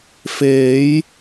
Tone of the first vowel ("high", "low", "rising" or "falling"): rising